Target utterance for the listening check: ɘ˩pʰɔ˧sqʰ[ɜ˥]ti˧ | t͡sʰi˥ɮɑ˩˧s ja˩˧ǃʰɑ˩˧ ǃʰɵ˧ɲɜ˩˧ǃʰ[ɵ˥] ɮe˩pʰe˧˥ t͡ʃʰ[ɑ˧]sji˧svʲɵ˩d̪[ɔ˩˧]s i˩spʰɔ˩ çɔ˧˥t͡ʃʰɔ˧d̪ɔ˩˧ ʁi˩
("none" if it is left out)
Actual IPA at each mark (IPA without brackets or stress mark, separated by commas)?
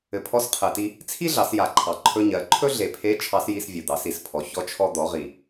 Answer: ɜ˩, ɵ˥, ɑ˧˥, ɑ˩˧